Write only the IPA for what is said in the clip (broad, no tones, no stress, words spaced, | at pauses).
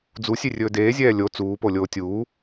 d͡zusʲerʲɵː deːzʲɛː lʲo t͡suːpolʲoː tʲuː